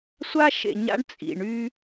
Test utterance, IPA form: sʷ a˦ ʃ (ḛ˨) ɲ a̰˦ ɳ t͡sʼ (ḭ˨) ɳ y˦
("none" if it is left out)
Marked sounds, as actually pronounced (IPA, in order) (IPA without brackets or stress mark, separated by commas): ḛ˨, ḭ˨